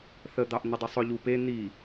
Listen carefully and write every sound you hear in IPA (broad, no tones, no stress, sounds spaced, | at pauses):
θ ə d̪ ɑ ʔ n̪ ə dˤ ɘ sˤ ʊ ʎ u p e n̪ i